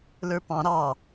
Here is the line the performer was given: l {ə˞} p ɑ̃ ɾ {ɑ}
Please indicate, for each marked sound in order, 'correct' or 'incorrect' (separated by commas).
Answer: correct, correct